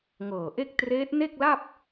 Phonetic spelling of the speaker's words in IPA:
ŋ ɤː˨˩ ʔ e˥˩ k̚ t r eː˦˥ t̚ n e˥˩ k̚ l a˥˩ p̚

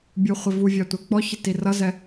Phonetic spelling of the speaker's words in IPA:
bʲ u χʷ i v u vʲ ɑ tʷ ɛ k͡p ɔ ç ɪ t i r ʌ z ɛ

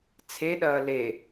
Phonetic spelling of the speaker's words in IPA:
t͡sʰ e ɗ ɐː l e

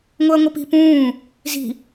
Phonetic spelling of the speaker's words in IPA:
ŋ o ɐ̯ ŋʷ ə p i̤ p ũː | z i̤

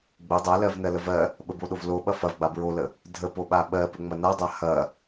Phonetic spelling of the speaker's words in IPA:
ɡ͡b ə dˤ a l ɜ v n ɜ l ə v ɜ | ɓ ə b o ɗ o v l o ɓ ɐ f ɐ v ɡ͡b a b ɹ o l ə | dʱ ə p o ɓ a ɓ ɜ p ə ŋ͡m ɐ n a dˤ a h ɐ

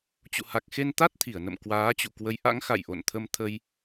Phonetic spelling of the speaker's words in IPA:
t͡ɕ ṵ˧˨ h a˨˩ k̚ x e˧ n t̪ a˦˥ t̚ t̪ʰ i˧˩ ə̯ n ə̰˧˨ m k w aː˨˦ t͡ɕ ṵ˧˨ k w ə˨˦ j ʔ a̰˧˥ ŋ x a̰˧˨ j ʔ o̰˧˨ n t̪ʰ ə˧ m t̪ʰ ə˧ j

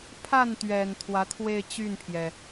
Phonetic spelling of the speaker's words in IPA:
pʰ a˥˩ n t̪ ɥ ɛ˨˩ n t̪ʰ w ä˧˥ t̪ʰ w e˥˧ ɪ̯ t͡ɕ y˥˩ n pʰ j ɛ˩

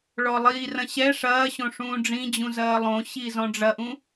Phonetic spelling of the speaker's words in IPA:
ɭ ɔ lˠ iː r ɐ̃ ɕ ɛ ʂ ɐː ɕ õ ʂ ũː ɖ͡ʐ ĩ d͡ʑ ũ z ɐː lˠ õ ɕ i z ɔ̃ ɖ͡ʐ ɐ ʔ ũ

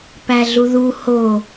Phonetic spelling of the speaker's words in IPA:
p æ ɮ u ð u h o

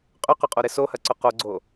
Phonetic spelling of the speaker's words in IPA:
qʼ ʏ q ʊ qʼ o ɾ ɪ s o h ɐ ǀ ʊ q o ɡ͡ǀ o

